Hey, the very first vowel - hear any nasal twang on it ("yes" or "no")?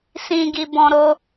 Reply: yes